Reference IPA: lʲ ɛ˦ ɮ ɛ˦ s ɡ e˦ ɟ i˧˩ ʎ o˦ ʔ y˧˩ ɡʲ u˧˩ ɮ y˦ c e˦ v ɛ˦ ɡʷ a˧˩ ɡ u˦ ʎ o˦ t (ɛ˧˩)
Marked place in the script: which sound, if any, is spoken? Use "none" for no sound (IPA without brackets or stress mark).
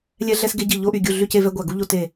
e˧˩